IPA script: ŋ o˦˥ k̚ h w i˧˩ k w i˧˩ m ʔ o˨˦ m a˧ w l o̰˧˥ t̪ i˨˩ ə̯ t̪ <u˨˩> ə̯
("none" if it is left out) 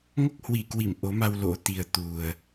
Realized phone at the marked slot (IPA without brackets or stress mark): u˨˩